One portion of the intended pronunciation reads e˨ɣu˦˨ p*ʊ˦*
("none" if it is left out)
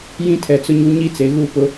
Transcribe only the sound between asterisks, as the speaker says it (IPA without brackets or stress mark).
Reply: ʊ˦